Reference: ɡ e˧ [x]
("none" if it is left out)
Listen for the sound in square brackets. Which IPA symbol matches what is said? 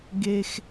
x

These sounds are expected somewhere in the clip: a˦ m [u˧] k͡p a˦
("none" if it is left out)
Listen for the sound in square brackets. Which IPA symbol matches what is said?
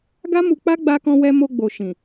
u˧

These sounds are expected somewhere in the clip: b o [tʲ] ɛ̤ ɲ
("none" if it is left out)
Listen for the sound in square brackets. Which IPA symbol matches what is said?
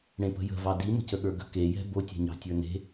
tʲ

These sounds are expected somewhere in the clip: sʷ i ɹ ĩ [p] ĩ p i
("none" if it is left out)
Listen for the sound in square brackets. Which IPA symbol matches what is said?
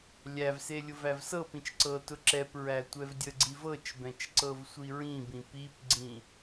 b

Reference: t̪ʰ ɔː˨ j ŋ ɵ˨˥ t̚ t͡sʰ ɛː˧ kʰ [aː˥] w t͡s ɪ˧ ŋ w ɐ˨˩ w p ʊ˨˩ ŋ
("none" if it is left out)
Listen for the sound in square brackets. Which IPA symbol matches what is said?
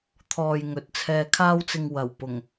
aː˥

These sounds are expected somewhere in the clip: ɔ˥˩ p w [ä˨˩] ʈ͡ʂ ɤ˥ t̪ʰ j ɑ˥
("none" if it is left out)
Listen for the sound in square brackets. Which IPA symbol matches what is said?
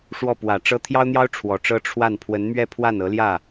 ä˨˩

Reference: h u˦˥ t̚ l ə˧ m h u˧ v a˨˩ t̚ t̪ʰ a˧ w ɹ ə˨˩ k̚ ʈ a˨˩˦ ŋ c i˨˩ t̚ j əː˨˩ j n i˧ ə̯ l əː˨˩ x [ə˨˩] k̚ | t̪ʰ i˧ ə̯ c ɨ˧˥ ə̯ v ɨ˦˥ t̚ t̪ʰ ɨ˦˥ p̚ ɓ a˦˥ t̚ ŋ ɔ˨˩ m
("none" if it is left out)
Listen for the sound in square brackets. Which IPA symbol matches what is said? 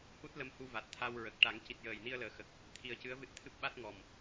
ə˨˩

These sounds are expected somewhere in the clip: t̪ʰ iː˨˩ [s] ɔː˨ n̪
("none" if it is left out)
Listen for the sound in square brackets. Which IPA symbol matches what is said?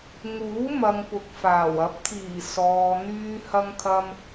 s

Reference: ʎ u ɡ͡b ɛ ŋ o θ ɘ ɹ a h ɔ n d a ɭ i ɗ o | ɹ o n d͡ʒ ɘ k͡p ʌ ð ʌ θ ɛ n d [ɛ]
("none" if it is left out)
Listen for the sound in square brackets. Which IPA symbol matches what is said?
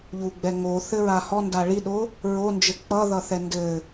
ɘ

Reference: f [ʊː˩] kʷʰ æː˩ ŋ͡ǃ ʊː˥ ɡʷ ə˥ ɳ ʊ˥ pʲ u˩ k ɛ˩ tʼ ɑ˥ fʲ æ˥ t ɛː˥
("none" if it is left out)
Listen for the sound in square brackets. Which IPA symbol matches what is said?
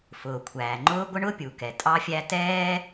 ʊː˩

